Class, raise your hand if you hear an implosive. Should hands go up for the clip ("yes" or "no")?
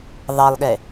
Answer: yes